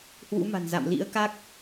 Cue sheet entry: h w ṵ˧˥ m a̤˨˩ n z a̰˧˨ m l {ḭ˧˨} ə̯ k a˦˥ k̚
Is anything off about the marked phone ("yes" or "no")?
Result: yes